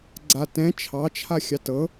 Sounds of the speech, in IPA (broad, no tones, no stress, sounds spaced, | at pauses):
ɡ͡ǀ a t ɛ̃ t͡ʃʰ ɑ t͡ʃʰ a xʲ ɑ t ɤ